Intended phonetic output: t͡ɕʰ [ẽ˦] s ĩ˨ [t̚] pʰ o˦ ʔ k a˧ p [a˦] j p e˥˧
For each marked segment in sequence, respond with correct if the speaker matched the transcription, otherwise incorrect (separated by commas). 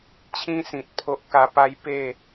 incorrect, correct, correct